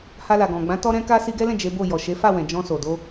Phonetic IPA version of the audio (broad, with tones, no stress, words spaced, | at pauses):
ha˧la˨ɡɔ̃˨ɡ͡bã˨˦ tɔ˦ɾɛ̃˦ka˦ si˧ɡɛ˦lɛ̃˦˨ d͡ʒe˨˦ bo˦˨ jɔ˨ʃe˨˦fa˦˨ wɛ̃˨ d͡ʒɔ̃˧so˨do˧